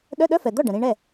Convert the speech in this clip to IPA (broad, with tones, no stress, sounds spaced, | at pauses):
ɗ œ˧˥˧ ɗ œ˧˥˧ f ɛ˩ d̪ ɔ˥˩ ɖ ə̃˩ ɾ ĩ˧ ɳ ɛ˥˩